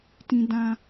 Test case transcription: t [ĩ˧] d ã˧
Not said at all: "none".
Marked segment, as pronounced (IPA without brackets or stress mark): ĩ˧